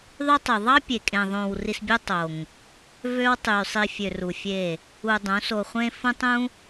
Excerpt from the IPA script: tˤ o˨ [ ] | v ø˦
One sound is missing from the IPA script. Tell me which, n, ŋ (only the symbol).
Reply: ŋ